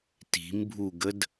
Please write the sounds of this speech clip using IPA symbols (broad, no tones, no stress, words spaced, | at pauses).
ti̤mbʱuɡəd